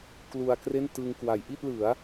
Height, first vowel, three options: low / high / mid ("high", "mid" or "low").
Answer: high